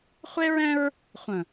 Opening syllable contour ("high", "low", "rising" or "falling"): high